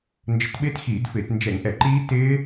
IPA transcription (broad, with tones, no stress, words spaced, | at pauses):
nd͡ʒə˧˩˧tɓɪː˦˥txiː˧˩˧dfɪː˧˩˧t nd͡ʒɛ˧˩˧ŋʔɛ˧˩˧ǃiː˦˥ tɪː˦˥